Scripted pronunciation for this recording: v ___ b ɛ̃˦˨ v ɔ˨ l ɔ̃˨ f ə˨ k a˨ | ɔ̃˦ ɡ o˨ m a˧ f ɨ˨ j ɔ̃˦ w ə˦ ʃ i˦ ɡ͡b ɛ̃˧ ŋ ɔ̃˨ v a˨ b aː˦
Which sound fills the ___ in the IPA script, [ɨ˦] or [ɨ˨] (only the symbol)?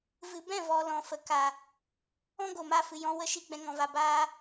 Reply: ɨ˨